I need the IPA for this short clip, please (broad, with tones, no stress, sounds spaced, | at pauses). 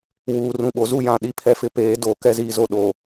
w uː˨ r ũ˨ ɓ o˨ z u˦˨ j ã˨ ɗ i˨ pʰ ɛ˨ f ɪ˨ p eː˨˦ d o˨ k ɛ˦˨ z iː˨ z o˨ ɗ o˨